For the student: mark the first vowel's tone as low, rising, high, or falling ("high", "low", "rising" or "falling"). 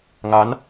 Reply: rising